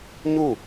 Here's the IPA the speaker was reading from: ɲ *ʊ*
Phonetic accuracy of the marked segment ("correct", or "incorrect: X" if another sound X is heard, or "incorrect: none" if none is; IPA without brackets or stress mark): incorrect: u